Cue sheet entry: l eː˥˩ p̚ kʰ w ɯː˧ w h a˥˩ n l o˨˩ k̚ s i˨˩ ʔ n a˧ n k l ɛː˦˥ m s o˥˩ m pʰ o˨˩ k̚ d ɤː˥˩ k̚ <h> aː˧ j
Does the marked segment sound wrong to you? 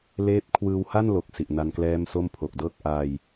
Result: yes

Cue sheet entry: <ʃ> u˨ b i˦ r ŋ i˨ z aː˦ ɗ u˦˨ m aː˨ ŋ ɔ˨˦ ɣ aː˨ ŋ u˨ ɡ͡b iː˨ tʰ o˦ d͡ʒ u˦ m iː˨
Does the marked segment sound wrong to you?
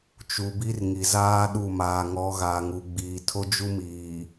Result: yes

